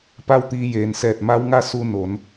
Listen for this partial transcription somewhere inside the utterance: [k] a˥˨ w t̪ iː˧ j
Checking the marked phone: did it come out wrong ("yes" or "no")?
yes